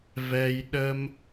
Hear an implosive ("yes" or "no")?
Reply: yes